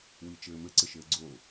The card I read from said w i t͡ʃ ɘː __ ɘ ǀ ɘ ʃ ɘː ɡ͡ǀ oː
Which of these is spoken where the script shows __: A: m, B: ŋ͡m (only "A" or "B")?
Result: A